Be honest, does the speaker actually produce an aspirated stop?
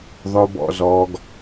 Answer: no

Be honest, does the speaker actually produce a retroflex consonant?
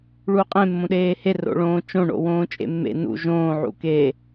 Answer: yes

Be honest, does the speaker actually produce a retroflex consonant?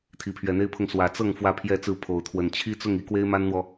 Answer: no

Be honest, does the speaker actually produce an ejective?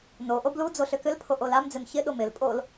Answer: yes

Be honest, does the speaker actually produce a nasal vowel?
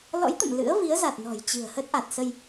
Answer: no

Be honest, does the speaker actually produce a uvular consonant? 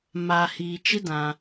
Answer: no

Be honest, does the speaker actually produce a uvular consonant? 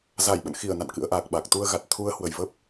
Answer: no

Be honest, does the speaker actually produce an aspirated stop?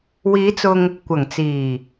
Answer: no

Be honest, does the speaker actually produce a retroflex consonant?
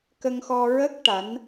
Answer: yes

